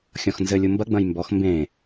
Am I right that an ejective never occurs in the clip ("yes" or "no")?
yes